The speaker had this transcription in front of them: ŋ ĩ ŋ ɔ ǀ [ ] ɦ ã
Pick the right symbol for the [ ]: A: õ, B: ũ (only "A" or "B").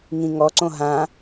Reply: A